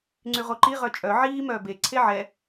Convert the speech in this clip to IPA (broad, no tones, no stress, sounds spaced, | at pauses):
ŋ͡ǀ y ʁ o ǃ i ʁ œ t͡ʃʼ œ ʕ iː m œː b e ǀʰ e ʕ ɛ